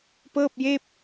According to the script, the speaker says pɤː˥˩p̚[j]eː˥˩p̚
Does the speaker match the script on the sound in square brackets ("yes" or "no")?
yes